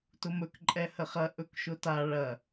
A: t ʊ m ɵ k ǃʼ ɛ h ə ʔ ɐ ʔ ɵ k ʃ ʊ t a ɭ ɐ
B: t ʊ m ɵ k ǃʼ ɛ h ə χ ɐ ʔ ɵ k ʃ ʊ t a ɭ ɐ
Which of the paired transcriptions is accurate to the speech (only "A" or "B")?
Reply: B